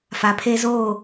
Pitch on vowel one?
low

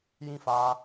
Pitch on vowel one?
falling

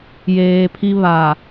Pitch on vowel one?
low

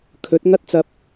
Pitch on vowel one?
rising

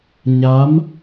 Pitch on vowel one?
rising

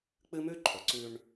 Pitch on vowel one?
high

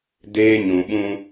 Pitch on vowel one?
high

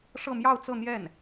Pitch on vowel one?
falling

